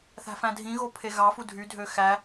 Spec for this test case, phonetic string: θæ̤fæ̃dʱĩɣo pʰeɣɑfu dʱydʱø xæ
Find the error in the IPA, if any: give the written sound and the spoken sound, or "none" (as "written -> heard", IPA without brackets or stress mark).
none